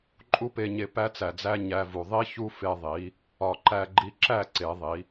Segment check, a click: present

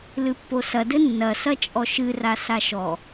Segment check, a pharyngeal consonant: absent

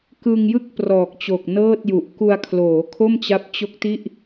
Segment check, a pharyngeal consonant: absent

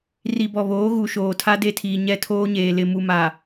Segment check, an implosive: absent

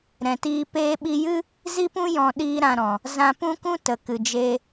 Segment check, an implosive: present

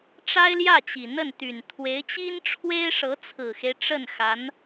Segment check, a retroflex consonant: present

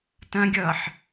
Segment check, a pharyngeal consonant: present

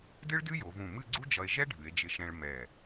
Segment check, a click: present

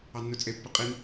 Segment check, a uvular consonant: present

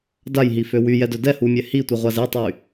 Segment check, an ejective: absent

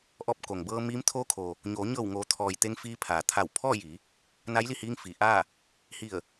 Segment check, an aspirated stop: present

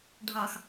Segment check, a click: absent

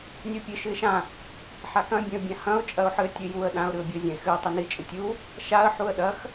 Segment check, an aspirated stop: absent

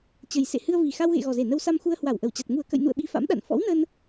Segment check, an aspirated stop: absent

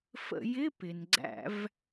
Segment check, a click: present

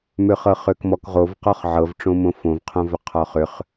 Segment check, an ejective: absent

